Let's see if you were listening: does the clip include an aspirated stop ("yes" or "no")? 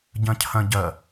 yes